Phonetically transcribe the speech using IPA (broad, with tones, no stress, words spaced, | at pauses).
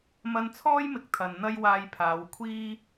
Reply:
mɐ˧nt͡sʰɔː˥jmɪ˨˥k̚ t̪ʰɐ˨n n̪ɐ˥j waː˧jpʰaː˨˧wkʷʰiː˥